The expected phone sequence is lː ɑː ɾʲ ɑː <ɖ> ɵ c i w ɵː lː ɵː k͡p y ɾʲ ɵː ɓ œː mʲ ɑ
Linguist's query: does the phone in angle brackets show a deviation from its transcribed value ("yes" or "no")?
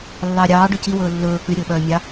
no